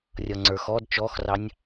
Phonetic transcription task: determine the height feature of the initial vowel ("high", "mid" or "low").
mid